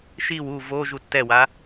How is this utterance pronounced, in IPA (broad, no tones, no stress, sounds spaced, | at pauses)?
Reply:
ʃ i w u v o ʒ u tː ɛ w a